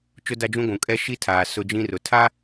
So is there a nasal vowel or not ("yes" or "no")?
yes